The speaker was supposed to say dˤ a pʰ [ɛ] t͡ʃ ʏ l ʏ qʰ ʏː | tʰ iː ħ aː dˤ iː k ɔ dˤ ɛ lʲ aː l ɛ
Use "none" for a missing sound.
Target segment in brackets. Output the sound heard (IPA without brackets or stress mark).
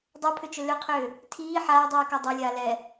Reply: ʏ